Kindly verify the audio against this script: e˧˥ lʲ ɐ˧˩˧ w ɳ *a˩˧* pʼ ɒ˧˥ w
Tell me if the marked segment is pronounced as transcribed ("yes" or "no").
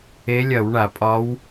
no